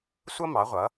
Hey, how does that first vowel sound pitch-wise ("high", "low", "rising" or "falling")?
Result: high